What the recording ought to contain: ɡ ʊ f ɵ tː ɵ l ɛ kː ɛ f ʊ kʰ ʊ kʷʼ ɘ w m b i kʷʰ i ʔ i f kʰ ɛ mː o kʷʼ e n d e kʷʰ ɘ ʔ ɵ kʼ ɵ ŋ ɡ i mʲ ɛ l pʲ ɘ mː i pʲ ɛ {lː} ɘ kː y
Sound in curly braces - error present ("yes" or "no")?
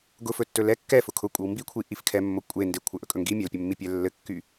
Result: no